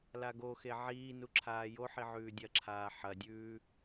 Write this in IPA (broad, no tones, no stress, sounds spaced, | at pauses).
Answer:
l a ɡ o x e ʕ iː n u ǁʰ aː j o ħ i ʕ ʉː dʲ ɐ ǁʰ aː ħ ɐ dʲ ʉː